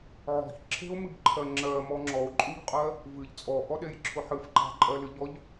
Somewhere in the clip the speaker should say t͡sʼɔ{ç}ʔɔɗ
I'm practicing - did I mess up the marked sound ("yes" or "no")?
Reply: yes